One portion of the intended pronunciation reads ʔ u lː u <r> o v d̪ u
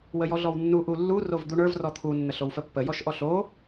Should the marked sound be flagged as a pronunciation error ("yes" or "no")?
no